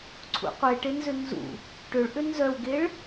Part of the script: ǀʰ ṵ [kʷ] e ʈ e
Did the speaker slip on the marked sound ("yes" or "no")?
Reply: yes